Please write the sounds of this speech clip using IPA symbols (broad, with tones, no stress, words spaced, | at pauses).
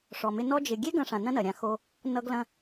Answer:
ʂɔ˨mɪ˧ nɔ˧d͡ʒɪ˨ ɡʲe˦ɡɐ̃˧ʂã˨ nɐ̃˦nɐ˨ɾʲã˧ xo˧ | nʌ˧ɡlɐ̃˧